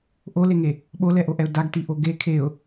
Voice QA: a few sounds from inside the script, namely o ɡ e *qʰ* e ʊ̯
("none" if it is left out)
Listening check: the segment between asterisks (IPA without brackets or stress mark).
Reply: kʰ